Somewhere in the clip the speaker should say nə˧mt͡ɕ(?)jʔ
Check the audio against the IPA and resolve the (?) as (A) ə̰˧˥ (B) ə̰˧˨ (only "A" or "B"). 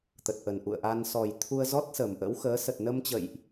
B